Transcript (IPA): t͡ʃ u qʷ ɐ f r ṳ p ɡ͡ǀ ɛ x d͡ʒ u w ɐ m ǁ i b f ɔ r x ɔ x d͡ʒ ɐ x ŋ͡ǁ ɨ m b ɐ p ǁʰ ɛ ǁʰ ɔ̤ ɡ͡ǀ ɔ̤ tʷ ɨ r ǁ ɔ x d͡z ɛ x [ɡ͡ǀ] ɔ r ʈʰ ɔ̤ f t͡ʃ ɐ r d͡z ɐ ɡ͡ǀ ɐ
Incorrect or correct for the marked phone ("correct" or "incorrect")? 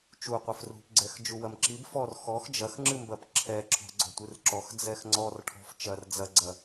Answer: incorrect